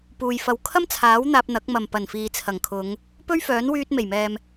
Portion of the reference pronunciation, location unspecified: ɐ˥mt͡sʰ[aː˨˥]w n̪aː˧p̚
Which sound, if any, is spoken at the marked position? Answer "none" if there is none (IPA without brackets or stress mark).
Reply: aː˨˥